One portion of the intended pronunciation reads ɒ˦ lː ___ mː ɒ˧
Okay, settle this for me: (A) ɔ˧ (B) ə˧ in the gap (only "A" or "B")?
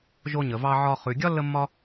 B